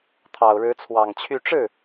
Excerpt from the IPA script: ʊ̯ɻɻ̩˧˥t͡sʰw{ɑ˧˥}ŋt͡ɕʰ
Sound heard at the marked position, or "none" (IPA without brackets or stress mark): ɑ˨˩